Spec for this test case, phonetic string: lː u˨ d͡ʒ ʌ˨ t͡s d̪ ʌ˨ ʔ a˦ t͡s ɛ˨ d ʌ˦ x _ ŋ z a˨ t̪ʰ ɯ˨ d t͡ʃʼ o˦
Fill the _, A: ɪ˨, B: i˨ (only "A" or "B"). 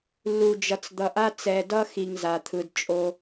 B